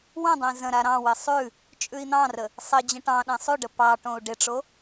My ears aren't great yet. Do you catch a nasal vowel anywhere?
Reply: yes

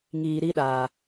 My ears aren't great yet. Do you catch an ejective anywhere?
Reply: no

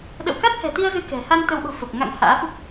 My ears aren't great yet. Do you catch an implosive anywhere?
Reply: yes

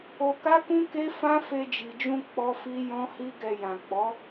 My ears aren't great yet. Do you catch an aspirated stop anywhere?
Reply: no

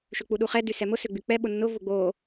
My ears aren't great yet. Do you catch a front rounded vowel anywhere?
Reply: yes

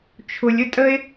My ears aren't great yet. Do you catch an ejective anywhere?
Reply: yes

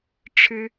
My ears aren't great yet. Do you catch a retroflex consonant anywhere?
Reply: yes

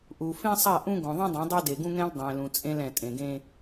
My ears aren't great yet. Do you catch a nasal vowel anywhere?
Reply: yes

